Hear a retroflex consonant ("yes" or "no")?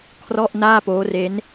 no